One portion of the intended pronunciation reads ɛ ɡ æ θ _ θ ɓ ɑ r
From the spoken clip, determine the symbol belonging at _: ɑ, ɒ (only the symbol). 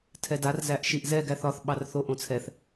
ɒ